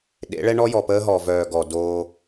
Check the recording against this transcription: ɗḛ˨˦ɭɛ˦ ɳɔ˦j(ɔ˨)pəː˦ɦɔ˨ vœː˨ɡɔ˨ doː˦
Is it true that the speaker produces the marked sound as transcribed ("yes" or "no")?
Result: yes